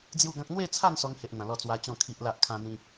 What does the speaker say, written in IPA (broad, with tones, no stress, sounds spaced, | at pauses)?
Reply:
d͡z j u˥˧ ɡ ã˦ k̚ n̪ w e˥˧ t͡sʰ a˥˧ n s ɔ˧ ŋ h e˦ ʔ n̪ ã˧ l ɔ˦ t͡s w a˦ t͡ɕ ɔ̃˥˧ kʰ i˦ ʔ l a˦ ʔ kʰ ã˦ n̪ ĩ˦